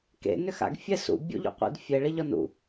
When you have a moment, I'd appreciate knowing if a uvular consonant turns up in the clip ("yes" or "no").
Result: yes